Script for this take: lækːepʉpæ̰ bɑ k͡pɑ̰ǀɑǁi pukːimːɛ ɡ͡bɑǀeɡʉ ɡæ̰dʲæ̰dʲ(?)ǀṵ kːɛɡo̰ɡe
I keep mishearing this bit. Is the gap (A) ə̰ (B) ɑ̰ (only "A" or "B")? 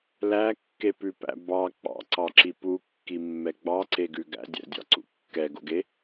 B